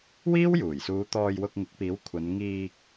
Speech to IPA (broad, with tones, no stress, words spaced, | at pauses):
wiː˥wjuː˨˩jsuː˨˧ t̪ɔː˧jwʊ˧k̚ŋɪ˨˥k̚piː˨˥w kʷʰɐ˨˧nŋiː˧k̚